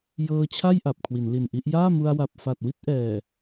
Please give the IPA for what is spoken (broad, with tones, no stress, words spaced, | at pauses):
jɤː˧t͡ɕʰa˥˩j ʔa˨˩p̚kʰwi˩˦nli˨˩nʔi˦˥ʔ jaː˥˩mu˧a̯wa˨˩p̚fa˨˩t̚ wi˥˩t̚ ʔɛː˨˩